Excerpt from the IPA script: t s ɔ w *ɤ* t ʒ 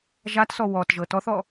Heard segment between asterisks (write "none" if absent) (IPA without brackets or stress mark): ɔ